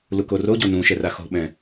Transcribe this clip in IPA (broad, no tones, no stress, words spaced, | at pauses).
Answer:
lukoroɟo nũ ʃɛraxo̤ɓɛ̃